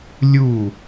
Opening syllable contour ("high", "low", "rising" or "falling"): falling